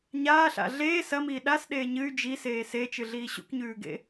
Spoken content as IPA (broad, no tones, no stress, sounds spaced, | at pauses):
ɲ aː ɬ a̰ ɮ eː s ɐ m iː ɗ a s ɗ eː ɲ ɨ y̯ d͡ʒ i s eː s e t͡ʃ ɨ ɮ iː ɕ ṵ k ɲ ʉː ɡ ḛ